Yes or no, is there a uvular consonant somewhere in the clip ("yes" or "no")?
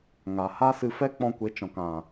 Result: no